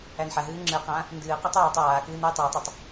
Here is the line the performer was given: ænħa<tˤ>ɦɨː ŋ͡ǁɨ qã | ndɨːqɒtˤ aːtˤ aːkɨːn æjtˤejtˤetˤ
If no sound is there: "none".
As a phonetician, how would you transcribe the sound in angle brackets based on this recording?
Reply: none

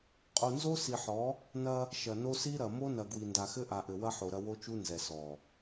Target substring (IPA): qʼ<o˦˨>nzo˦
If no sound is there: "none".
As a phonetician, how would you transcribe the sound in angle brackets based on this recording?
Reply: o˨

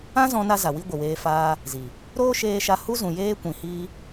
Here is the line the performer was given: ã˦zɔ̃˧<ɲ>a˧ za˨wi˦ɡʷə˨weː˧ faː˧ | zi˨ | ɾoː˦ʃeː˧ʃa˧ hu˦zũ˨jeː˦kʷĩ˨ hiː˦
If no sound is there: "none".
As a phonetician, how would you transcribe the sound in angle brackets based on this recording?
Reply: n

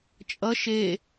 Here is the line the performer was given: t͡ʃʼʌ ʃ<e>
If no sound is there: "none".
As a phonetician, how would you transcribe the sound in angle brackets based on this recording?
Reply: e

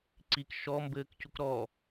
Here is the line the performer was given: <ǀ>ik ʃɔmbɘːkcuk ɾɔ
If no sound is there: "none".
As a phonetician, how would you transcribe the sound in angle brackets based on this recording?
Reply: ǀ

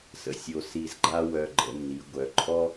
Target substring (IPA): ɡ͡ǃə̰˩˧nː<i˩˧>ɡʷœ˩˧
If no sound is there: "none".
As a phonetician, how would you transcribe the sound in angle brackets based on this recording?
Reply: i˩˧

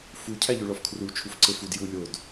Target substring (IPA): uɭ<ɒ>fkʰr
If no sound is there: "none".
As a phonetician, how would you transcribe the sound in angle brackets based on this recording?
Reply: ɒ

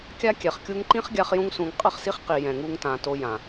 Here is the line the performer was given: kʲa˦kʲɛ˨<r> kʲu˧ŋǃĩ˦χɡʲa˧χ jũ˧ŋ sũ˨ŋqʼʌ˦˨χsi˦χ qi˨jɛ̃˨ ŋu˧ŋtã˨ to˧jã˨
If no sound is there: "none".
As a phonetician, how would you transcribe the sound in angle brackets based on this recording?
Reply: χ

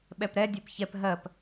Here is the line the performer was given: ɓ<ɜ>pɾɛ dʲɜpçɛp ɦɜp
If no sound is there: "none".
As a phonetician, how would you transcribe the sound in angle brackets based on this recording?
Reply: ɛ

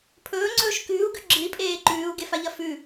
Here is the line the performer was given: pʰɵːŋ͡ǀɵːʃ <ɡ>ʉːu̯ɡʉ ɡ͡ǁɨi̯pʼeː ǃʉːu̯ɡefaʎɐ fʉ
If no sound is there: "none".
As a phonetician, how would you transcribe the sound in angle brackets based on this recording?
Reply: k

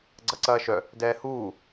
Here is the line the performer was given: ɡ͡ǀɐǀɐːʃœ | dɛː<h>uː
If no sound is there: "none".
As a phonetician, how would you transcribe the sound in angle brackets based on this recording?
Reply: h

